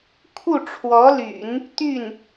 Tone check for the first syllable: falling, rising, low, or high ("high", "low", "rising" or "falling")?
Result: falling